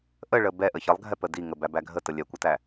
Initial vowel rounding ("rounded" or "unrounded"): unrounded